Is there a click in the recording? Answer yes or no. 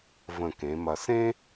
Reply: no